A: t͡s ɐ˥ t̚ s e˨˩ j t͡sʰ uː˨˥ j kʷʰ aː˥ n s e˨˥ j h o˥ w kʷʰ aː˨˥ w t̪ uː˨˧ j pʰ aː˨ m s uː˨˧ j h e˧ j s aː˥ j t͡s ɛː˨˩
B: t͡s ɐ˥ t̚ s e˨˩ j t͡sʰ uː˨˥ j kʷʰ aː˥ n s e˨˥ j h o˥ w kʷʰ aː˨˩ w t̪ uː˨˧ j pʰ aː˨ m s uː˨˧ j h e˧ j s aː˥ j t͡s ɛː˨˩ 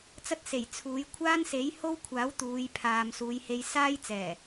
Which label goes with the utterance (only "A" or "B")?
A